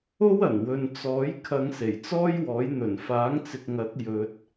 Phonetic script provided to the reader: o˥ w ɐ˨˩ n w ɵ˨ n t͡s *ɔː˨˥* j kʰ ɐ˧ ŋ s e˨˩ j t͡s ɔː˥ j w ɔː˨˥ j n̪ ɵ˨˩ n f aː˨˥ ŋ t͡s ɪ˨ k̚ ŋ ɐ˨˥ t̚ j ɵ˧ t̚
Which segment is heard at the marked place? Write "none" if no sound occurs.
ɔː˨˥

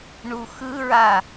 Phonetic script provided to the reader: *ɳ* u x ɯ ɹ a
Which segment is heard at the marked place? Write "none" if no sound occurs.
ɳ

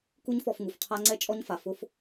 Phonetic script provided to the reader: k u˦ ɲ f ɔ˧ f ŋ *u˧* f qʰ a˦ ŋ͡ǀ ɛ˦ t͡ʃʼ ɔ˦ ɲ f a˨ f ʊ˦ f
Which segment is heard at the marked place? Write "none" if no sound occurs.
u˨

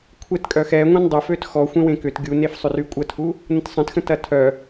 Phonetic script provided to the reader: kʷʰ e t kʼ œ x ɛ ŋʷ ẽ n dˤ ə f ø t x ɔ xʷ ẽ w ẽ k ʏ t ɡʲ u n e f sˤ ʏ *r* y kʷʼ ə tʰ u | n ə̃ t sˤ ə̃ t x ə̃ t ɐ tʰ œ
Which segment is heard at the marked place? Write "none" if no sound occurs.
r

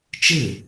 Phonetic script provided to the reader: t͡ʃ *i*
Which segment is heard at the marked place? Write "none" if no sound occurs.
ɨ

